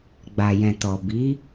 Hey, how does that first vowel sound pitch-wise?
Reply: low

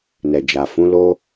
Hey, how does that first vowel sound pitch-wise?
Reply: low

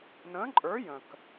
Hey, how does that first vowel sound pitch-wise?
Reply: rising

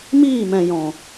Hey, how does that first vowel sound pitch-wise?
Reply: falling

